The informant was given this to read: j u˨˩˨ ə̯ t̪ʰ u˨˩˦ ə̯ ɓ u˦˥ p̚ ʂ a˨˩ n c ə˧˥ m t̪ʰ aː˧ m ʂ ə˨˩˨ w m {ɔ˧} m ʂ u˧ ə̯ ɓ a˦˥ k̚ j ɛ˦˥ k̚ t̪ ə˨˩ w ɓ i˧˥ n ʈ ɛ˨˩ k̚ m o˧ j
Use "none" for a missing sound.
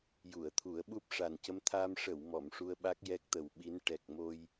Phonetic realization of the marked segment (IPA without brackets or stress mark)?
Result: ɔ˨˩˨